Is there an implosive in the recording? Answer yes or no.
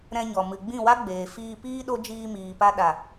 yes